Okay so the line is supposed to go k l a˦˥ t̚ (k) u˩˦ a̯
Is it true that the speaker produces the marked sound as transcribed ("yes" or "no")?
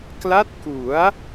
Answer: yes